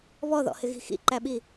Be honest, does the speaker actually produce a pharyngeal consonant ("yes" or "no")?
no